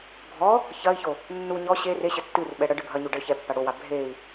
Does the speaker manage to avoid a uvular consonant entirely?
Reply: yes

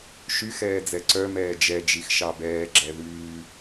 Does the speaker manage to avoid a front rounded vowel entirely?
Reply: no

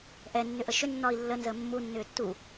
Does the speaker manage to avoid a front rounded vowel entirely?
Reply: no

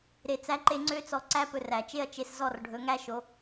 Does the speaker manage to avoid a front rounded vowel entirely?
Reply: no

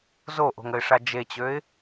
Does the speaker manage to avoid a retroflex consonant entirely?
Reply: no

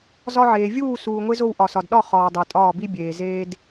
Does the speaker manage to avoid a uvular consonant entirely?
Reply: no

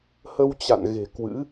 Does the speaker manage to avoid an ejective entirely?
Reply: yes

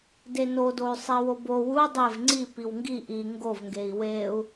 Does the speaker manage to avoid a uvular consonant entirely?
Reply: yes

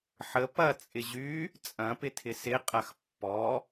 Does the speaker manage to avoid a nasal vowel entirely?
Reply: no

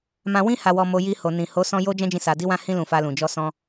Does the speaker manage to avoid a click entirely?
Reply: yes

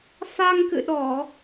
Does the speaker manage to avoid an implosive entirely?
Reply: no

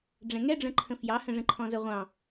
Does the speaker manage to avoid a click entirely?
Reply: no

